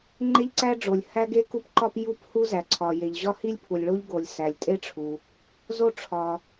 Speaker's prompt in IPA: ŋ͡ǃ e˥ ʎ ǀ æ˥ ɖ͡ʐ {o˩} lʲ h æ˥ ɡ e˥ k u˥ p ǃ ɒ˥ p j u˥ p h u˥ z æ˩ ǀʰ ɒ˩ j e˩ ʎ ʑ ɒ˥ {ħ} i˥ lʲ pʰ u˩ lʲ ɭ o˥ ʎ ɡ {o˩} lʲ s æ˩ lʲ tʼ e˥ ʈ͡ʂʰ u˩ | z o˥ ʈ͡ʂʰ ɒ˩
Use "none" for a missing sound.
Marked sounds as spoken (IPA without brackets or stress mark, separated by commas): o˩, h, o˩